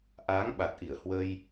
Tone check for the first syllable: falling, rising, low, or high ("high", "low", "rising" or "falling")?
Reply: rising